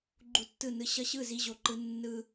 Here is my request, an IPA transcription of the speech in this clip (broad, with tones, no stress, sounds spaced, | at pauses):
ɡ͡ǃ u˧ tː ɯ˦˨ n ɯ˧ ɕ ʌ˦ ɕ ɯ˦˨ z i˧ ʑ o˨ ǃ ɯ˧ nː ɯ˧